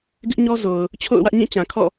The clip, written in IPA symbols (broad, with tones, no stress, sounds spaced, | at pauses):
ɡ ɪ˦ ʔ ɲ ɔ˦ z o˨ ʊ̯ | t͡ɕʰ o̰˦˨ ʊ̯ w ä˦ ʔ ɲ ĩ˦˨ t͡ɕ ã˨ kʰ ɔ̰˦˨